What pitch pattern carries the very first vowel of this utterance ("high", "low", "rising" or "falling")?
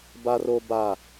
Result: high